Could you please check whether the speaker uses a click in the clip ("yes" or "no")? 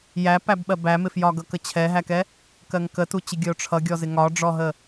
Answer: no